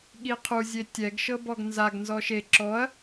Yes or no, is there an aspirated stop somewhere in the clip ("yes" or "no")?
yes